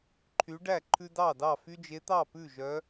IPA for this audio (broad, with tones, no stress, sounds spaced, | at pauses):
ǃʰ y˨˦ ɖ æ˥˩ ǃʰ ʉ˦ d ɑ˥˩ d ɑ˥˩ f y˦ d͡ʒ e˨˦ t̪ ɑ˥˩ p ʉ˥˩ ʒ œ˨˦